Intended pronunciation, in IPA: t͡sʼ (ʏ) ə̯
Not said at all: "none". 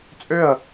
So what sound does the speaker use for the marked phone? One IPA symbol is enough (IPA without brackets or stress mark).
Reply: ʏ